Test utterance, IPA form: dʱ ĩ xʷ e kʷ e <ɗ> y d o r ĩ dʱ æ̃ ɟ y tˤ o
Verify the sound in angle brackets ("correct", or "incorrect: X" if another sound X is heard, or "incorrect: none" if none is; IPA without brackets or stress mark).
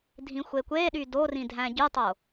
correct